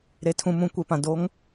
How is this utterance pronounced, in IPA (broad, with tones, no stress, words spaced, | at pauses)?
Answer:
ɾe˨tʰũ˨mũ˨ kʷe˨pã˨ do˨˦ŋ